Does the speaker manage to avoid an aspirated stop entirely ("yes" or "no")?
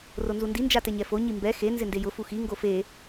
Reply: yes